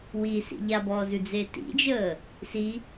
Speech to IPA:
wisḭ ʎabɔːzʉd͡ze tḭd͡ʒəː | si

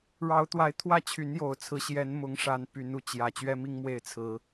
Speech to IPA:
ɻɑ˨˦ʊ̯t̪wa˨˦ɪ̯ t̪ʰwä˥˨t͡ɕʰy˨˦njo˨˩ʊ̯t͡sʰɹ̩˨˦ ɕjɛ˨˦nmʊ˨˦ŋʂa˨˦n py˨˦nu˨˦t͡ɕjä˨˩ t͡ɕɥɛ˦mi˦ŋ mwe˥˨ɪ̯t͡sʰɹ̩˨˦

